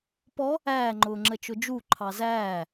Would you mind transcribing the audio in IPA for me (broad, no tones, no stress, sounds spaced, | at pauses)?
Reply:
p ɔ | æː ŋ͡ǃ ʊː ŋ͡ǁ ə t͡ʃ ʊ d͡ʒ u ǃʰ ɑ z æː